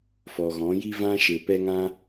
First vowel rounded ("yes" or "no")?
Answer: yes